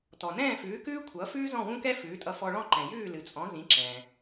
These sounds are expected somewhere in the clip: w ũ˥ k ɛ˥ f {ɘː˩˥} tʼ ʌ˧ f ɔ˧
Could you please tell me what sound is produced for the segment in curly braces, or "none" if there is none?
ʉː˩˥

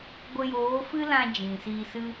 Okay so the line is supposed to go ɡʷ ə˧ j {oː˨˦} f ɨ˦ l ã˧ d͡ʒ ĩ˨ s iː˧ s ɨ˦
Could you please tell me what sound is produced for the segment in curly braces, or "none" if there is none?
oː˨˦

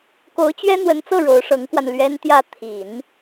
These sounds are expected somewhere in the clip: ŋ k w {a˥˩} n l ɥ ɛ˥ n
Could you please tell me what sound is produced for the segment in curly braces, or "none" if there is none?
a˧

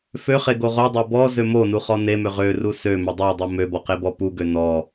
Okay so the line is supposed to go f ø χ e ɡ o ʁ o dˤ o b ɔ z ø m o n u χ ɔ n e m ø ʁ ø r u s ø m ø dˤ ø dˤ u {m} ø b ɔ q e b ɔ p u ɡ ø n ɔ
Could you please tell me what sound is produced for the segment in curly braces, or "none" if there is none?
m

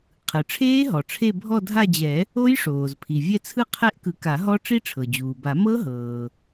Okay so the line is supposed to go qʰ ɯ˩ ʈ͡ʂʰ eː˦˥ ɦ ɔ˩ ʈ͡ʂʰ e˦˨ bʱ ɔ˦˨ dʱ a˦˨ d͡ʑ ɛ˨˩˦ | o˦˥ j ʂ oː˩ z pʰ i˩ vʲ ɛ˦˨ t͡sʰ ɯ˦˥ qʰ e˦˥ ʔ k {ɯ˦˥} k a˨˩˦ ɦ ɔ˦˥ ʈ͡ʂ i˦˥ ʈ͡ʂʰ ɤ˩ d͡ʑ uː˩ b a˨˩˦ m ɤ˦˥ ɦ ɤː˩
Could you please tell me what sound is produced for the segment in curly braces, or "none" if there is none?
ɯ˨˩˦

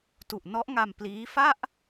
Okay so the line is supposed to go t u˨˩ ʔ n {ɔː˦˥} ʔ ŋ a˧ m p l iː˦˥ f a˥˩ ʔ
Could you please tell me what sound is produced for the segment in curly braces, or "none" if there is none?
ɔ˦˥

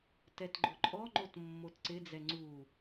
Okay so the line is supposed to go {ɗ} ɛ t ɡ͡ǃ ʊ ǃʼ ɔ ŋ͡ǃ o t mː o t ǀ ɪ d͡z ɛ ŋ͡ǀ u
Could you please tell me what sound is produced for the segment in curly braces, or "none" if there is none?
t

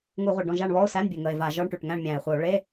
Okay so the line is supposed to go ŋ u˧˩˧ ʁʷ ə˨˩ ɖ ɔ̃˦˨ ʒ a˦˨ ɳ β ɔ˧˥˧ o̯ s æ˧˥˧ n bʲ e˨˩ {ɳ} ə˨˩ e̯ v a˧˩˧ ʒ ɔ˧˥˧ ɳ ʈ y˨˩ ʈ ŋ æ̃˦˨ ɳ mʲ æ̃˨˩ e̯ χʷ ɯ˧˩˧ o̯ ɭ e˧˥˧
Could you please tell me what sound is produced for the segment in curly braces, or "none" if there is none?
ŋ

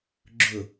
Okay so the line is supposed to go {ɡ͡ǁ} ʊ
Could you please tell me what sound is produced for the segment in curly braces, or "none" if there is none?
ɡ͡ǁ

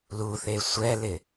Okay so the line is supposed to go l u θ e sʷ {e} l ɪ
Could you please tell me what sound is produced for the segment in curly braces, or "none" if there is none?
ɛ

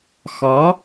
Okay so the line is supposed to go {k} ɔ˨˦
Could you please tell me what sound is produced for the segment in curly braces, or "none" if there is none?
x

